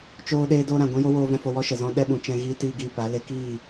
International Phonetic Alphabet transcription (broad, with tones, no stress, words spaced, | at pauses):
t͡ʃoː˧ɗeː˧do˧ ɾã˨ ɡʷɛ̃˦jo˦woː˧ vɛ̃˧fo˧ wɔ˦ʃə˨zɔ̃˦ɗɛ˦ ɓũ˨ t͡ʃɛ̃˧ɣiː˧tiː˧ ɡiː˧pa˨˦le˦ kiː˦˨